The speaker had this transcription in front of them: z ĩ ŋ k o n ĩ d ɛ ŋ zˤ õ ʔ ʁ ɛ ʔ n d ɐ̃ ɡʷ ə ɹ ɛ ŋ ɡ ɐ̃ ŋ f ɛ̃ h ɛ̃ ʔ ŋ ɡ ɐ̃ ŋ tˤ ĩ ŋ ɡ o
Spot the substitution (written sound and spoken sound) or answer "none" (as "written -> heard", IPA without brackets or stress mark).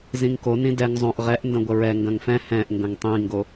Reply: none